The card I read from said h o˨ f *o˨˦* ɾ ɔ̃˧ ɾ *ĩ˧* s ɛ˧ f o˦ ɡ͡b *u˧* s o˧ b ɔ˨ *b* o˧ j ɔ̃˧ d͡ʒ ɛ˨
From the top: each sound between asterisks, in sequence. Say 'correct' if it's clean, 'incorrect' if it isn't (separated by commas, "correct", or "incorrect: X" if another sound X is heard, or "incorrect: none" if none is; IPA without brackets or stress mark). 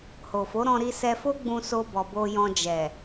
correct, incorrect: i˧, incorrect: ũ˧, correct